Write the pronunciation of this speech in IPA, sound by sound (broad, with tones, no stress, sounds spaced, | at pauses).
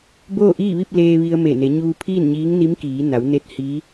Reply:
b oː˥˨ ʔ iː˥˨ ʋ i˥˨ p̚ l eː˧ ʋ i˧ ə̯ m e˧˩ n e˩˧ ɲ uː˧ pʰ iː˥˨ n ɲ iː˧˥ ŋ n i˧˥ m k iː˩˧ n a˩˧ w n e˧˥ t̚ h i˧˥